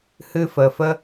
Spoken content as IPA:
hɨ˧fə˨fə˦

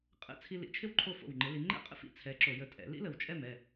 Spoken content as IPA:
qʼə̰˥˩ t͡sʰi˥ lḭ˨˦t͡ʃʰɪ˥wǃʰo˥˩ fo̰˧˩wŋ͡ǃɪ˨˦li˨˦ ŋ͡ǃɛ̰˥qʼə̰˥˧fḭ˥˩t͡sʰɛ˨˦ ǁo˧˩˧jə˧˩ tʼɛ̰˨˦ lḭ˥lə˧˩wt͡ʃʼɛ˥˩m ɛ˥˩

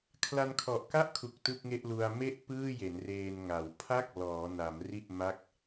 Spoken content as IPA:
kʰla˧nkʰɔ˨˩ʔka˥˩ʔkʰu˨˩k̚ tɯ˥˩k̚ŋe˥˩ʔlu˧a̯ me˥˩ʔ pɯː˥˩je˩˦n reː˧nŋa˩˦w pʰa˥˩k̚ lɔː˩˦na˩˦m ri˥˩ʔma˥˩k̚

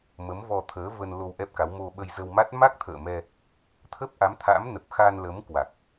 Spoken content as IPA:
mə˨˦mvɔ˧t̪ʰəː˨˦ və˧nlo˧w ʔɛ˦˥p̚ka˨˦w mo˧ ɓə˧jzə˧wma˦˥t̚ ma˦˥k̚t̪ʰə̰ː˧˨mɛ˧ | t̪ʰə˦˥p̚ʔa˨˦mt̪ʰa̰˧˥m nə˨˩p̚xa˧nlə˨˦m kwa˨˩k̚

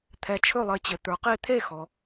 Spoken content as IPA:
t̪ʰɛ˨˥t͡ʃʰɵ˥˨lˠɘ˨˥t͡ɕɘ˨ t̪ə˞˨qe˥˨ t̪ʰe˥˨xɔ˨

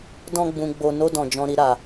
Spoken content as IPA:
dɔ̃˦ ɡ͡bũ˧ɡ͡bo˧ no˧dɔ̃˨ d͡ʒɔ̃˧ɾi˧ ɾa˨

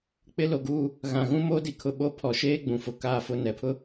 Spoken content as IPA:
k͡pɪ˦lo˨ɡuː˦ | ɣã˨ɣũ˦moː˦di˨ kʰʊ˨ ɓo˦pʰɔ˨ ʃeː˦ ɡ͡bũ˨fʊ˨ kaː˦˨fʊ˦˨nɛ˨pʰʊ˦

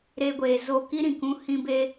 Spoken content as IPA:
ɾeː˧ɡʷeː˨zo˧ki˦ ɾĩ˨kũ˦ hĩ˧beː˧

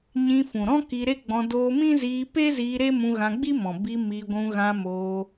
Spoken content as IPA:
ɲĩ˧fũ˨ɾɔ̃˦ ki˧ɾe˦ɡ͡bɔ̃˧ doː˧mĩ˦ ziː˧pe˦ziː˧ ɾe˦mũ˧ɣã˧ɡ͡bi˦ mɔ̃˨bi˧ mi˧ɡʷũ˧ ɣã˧ moː˧

